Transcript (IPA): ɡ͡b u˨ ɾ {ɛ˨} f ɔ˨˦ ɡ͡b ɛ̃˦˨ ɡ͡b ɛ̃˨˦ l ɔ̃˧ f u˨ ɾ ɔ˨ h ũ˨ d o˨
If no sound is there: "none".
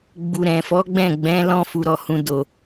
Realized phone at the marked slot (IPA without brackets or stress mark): ɛ̃˨